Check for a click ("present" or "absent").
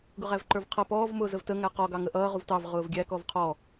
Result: present